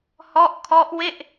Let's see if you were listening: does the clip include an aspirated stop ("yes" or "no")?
yes